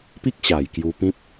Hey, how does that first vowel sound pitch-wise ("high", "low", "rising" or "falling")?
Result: high